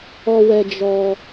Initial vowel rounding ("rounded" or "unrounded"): rounded